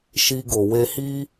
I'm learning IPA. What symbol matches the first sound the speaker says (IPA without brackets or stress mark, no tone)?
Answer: ʃ